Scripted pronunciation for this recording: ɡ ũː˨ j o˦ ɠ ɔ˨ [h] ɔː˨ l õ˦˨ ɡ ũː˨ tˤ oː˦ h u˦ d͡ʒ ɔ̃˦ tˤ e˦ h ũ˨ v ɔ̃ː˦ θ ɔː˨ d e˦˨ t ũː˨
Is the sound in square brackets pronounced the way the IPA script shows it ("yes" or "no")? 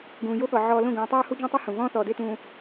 no